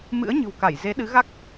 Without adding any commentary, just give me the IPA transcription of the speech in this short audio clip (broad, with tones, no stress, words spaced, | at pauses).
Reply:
mɨ̰˧˥ə̯ɲɨ̤˨˩wka˧˩j ze˨˦ɗɨ˨˦ɣa˦˥k̚